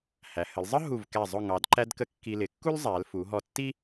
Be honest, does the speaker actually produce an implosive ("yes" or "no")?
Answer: no